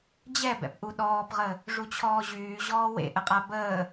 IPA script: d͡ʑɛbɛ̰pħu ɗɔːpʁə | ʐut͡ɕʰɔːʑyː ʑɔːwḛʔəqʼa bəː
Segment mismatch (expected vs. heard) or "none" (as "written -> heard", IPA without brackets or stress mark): ħ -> ʔ